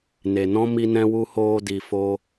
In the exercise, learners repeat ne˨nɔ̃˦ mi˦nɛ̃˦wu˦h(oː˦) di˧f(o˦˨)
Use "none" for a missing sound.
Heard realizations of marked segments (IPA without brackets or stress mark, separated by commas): oː˦, o˦